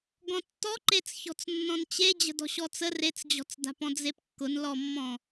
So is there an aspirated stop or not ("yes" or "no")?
no